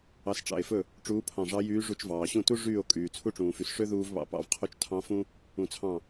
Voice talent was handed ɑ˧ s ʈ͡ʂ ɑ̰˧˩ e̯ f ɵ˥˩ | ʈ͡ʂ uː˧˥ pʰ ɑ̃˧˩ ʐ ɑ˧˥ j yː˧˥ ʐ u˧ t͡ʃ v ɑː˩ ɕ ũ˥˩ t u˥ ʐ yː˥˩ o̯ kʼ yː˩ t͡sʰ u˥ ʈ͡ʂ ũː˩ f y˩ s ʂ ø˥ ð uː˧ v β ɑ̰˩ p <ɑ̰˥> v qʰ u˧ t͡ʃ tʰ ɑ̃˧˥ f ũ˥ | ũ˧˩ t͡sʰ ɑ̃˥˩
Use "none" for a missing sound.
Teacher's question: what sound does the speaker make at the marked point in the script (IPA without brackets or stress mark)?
ɑ̰˧˩